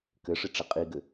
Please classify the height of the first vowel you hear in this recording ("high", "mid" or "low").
mid